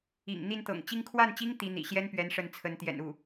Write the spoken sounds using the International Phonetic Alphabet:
ḭ˨˩ŋ n̪i˥˩nt̪ɤ̰˨˩ŋt͡ɕi˥ŋ kʰwa˥˩nt͡ɕi˥ŋ t̪i˧˥ n̪ḭ˨˩ɕjɛ˥npɥɛ˧˥n ʂə˥˩nt͡sʰə˧˥n t̪jɛ̰˨˩nu˥˩

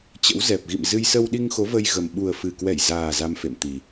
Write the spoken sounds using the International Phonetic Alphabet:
t͡ɕə̰˧˥wzɛ˨˩p̚ ɣḭ˧˨m zɨ˧j sə˧wɗi˧ŋxo˨˦ və˧jɣə˨˩m ɓu˨˩ə̯fɨ˨˩ kwɛ˧˩jzaː˨˩ za˧mfḛ˧˨mt̪i˨˩

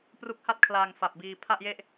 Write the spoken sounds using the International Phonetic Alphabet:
pru˦˥k̚ha˥˩t̚kʰlaː˧ŋ fa˨˩p̚biː˧ pʰa˥˩ʔje˥˩ʔ

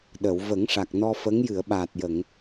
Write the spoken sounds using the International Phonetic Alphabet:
ɗə˨˩˨w və˨˩˦ŋʂa˨˩k̚nɔ˧ fə˧˥ŋ jɨ˨˩˨ə̯ɓaː˨˩t̚jə˨˩˨ŋ

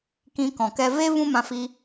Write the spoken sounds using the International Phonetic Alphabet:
kĩ˧kɔ̃˨kɛ˧ ve˦ vũ˦mã˧fi˧

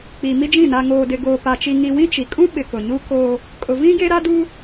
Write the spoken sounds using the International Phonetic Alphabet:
k͡pi˨mi˦d͡ʒĩ˦˨ na˨ŋoː˨dɪ˨ ɡoː˨pa˨t͡ʃi˨ ŋi˨wĩ˦ t͡ʃi˨ kʼũ˦ɓɪ˨ kʊ˨ɲu˦ koː˦ | kʼʊ˨vĩ˦ ɡe˦ɾa˦duː˦

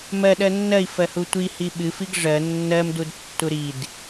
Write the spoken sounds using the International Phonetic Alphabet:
mɜ ɗɜnːɜi̯fɜhu tʷi hiɓɨfiɡ ʐɜ nːɜmdudtːu ɾid

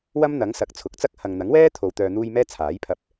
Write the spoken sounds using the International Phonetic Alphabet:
wɐ˥mn̪ɐ˨˥ŋ sɐ˨˥k̚t͡sʰʊ˨˥k̚t͡sɐ˥k̚ hɐ˨ŋn̪ɐ˨˥ŋwɛː˥ t̪ʰo˨wt̪œː˨n̪uː˧j mɛː˥t͡sʰaː˨˥jpʰɐ˧p̚

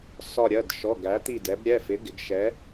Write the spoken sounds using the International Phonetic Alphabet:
sɒ˧˩ɾʲɜ˩˧˩d ʃɔ˩˧˩ ɡæ˩˧t̪i˧˩dɛ˩˧bɾʲɛ˩˧˩ fɪ˨˥ɡɪ˩˧ɡ ʃɛ˨˥

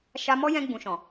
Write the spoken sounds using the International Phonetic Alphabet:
ʃa˧mɔ˦ jɛ̃˧ɡ͡bũ˨ʃɔ̃˨

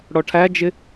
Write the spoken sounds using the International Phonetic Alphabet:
ɽɔʈʰæd͡ʒɪ

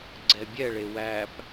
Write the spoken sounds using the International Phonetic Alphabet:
ɡ͡ǀɛbʲɛɭe wæp

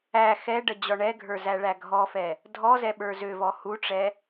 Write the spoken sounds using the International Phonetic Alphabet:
æ xɛɖə d͡ʑɔɳɛɡʱə˞ zæɭæɡʱɔfɛ | dʱɔzɛ ɓə˞zøvɔ huʈ͡ʂɛ

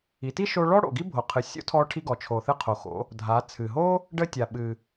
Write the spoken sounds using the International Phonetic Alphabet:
i˩˧ti˥ ʃo˧ ɭɔ˥ ɽo̰˩ɡi˥bʱo˩qʰɨ˩ sʲo̰˧˥tʰɔ˧ʈʰi˧ ɡɔ˩t͡ʃʰo˩ θɨ˧qʰo˩xo̰˩˧ | dʱa˩˧t͡sʰɨ˩ɦo˥ | ɖə˧tʲa˩ɓɨ˩

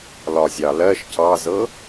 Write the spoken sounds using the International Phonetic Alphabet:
lɒzʲɑlɜʃ cɑzɤ

